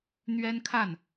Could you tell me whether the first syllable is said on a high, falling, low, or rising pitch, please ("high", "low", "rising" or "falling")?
high